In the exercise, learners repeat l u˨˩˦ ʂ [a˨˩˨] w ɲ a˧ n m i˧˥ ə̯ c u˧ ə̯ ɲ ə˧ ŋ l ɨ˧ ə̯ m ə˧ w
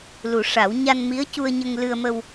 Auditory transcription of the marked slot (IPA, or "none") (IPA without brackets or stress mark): a˨˩˦